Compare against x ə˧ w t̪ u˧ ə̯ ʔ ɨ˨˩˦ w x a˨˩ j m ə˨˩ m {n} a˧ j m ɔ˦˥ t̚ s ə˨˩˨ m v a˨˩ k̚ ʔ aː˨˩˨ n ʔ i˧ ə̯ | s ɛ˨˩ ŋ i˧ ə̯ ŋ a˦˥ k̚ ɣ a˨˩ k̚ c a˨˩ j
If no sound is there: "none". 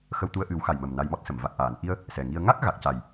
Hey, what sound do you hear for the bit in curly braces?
n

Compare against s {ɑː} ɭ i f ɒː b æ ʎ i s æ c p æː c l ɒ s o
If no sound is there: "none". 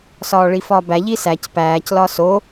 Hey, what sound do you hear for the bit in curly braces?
ɒː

